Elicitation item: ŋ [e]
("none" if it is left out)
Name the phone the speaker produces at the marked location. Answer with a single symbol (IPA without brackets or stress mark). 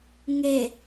e